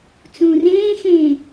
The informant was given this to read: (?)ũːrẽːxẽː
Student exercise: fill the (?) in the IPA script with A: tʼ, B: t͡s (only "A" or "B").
B